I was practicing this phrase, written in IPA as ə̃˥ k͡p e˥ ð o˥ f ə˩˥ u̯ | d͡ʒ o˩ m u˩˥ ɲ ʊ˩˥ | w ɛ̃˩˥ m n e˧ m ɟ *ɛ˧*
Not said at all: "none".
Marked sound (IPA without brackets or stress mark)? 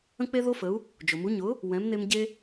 e˧